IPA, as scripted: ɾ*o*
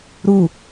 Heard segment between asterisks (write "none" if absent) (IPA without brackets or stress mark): u